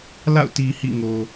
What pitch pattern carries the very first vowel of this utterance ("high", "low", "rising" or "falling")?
falling